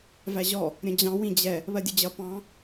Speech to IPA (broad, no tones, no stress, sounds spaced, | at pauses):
v æ ʑ ɔ | ɾʲ ə̃ d͡ʑ ɑ̃ w ĩ d͡ʑ ɛ | β ɜ dʲ ə d͡ʑ ʌ p ɑ̃